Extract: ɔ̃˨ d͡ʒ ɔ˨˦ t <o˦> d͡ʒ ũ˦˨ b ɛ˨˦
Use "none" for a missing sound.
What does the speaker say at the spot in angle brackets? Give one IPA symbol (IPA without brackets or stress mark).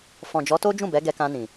o˦